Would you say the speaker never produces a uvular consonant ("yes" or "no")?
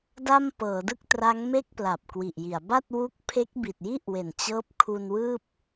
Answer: yes